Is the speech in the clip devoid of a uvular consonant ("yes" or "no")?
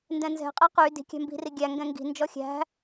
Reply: no